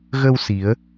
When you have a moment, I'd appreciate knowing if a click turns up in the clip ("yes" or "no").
no